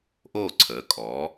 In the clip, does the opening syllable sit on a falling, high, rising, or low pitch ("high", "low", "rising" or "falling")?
falling